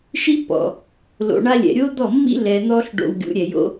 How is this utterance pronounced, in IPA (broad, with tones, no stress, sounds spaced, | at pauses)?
ʃ i˦ pː ɔ̰˨ | l o̰˨ ɳ a˧ lʲ ɛ̰˨ ɾʲ o˦ d̪ ɔ˦˨ mː ḭ˦ l ɛ˨ n̪ ɔ˧ ɬ ɖ o̰˧ w ɡʲ ṵ˨˦ ɾʲ ɛ˨ j o̰˦